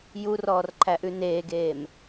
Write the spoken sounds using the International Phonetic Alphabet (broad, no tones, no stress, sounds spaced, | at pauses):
j u r ɔː r ǃʰ æ ʔ ʉ n eː ɡ eː m